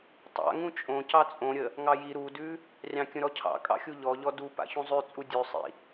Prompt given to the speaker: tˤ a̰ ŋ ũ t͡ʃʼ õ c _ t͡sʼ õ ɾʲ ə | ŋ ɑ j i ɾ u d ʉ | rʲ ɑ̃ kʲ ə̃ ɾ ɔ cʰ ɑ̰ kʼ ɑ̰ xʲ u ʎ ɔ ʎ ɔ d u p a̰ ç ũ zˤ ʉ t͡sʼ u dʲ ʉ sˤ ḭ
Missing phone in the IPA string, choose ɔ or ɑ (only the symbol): ɑ